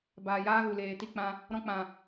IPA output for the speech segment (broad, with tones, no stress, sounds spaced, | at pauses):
b aː˨ j aː˦ ɣ u˨ l eː˨ t i˧ k͡p ã˧ | ɾ ɔ̃˧ k͡p ã˨